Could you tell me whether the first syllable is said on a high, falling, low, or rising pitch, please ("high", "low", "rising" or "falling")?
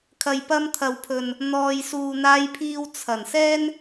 low